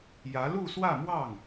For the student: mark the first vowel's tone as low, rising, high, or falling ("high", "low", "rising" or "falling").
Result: rising